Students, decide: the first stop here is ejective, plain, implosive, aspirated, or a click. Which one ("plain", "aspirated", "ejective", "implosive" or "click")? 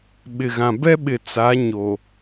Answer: implosive